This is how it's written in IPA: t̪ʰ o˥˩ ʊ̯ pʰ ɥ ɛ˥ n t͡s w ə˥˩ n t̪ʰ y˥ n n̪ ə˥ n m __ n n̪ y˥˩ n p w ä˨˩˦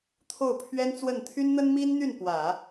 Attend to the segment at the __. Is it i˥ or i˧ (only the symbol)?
i˥